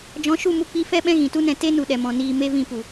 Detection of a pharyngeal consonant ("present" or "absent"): absent